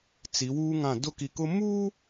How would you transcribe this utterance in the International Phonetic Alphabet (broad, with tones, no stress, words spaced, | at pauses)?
t͡si˨˦wuː˦ŋã˦˨ dʊ˦ki˨kʊ˦ muː˦